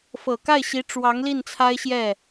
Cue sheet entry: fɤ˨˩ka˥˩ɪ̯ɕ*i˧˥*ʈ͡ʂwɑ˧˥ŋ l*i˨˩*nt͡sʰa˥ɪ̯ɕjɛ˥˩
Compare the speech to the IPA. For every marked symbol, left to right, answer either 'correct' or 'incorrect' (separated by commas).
correct, incorrect